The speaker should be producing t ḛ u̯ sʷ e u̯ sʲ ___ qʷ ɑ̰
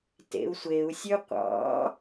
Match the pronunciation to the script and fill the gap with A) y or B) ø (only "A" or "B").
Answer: B